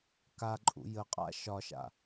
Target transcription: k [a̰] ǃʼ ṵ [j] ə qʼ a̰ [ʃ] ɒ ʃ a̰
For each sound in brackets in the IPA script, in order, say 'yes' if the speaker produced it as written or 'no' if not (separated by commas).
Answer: no, yes, yes